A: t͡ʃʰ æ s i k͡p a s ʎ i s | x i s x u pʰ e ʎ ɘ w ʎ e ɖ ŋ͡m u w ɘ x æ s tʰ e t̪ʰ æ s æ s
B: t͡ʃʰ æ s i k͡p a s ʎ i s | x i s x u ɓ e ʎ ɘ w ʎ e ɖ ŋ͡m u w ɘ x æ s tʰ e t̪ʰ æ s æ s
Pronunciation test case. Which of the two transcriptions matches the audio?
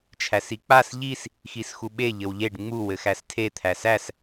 B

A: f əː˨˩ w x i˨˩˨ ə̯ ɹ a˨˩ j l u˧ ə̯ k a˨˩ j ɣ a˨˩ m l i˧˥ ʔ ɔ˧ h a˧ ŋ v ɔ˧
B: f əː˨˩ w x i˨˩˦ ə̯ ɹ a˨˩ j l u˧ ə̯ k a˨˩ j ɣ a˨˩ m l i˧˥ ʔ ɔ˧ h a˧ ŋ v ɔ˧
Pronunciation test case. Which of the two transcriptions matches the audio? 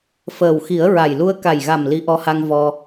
B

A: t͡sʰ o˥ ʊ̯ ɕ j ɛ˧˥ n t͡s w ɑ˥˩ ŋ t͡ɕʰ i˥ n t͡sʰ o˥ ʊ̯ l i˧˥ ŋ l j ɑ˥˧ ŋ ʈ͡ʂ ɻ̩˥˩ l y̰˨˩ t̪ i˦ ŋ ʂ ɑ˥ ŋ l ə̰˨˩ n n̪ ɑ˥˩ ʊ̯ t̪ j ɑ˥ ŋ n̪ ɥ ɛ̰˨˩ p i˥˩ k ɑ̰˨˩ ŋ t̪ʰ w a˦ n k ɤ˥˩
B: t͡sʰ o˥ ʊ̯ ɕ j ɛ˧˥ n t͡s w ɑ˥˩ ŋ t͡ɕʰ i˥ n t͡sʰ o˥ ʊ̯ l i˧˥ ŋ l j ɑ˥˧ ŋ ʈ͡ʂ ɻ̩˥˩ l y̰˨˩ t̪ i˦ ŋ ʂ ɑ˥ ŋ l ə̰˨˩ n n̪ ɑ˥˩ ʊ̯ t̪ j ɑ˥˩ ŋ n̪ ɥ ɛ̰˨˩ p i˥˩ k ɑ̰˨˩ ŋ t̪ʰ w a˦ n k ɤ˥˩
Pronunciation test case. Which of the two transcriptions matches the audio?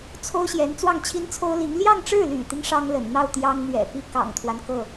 A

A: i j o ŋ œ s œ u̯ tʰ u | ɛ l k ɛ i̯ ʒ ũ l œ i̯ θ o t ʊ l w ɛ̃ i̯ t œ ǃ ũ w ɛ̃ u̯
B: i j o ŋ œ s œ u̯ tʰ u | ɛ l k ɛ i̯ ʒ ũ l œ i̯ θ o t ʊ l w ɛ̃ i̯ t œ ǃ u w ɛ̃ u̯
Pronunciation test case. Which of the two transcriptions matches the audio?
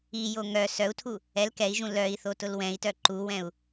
B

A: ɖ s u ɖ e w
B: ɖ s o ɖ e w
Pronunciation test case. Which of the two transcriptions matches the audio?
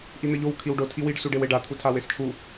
A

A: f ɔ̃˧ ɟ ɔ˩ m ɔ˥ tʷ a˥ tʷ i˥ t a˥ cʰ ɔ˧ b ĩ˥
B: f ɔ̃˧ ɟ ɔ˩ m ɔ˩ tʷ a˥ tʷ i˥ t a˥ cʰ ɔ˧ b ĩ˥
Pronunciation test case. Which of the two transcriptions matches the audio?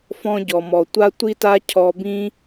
B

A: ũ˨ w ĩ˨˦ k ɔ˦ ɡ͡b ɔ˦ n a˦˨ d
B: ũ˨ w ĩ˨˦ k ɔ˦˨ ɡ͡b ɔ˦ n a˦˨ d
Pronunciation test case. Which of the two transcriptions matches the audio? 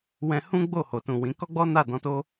A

